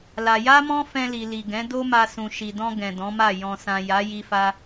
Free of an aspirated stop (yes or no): yes